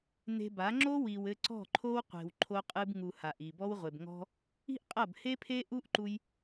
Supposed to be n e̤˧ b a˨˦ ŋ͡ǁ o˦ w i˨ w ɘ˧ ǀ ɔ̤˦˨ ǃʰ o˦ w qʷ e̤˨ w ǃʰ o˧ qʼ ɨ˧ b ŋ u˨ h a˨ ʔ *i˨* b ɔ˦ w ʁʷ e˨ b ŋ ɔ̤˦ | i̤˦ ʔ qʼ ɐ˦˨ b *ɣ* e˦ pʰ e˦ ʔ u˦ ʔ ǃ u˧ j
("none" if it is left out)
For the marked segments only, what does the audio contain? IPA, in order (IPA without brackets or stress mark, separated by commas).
i˨, h